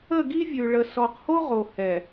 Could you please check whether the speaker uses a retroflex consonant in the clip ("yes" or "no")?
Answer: yes